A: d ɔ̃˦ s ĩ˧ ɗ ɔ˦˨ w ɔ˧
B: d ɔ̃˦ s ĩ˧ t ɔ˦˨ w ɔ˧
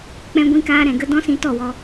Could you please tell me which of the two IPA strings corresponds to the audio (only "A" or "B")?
B